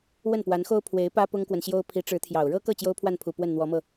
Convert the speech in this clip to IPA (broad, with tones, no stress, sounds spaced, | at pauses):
w ə˥˩ n p w a˧˥ n x o˥ ʊ̯ pʰ w e˧˥ ɪ̯ p ä˥ p ʊ˥ ŋ k w ə˨ n ɕ j o˥ ʊ̯ pʰ i˧˥ ʈ͡ʂ ɻ̩˧˥ t̪ʰ j ɑ˨˩ ʊ̯ ɻ ɤ˥ k ɤ˥˩ t͡ɕ j o˥ ʊ̯ pʰ w a˥˩ n pʰ u˨˩ p w ə˥˩ n n̪ w ɔ˧˥ m ɤ˧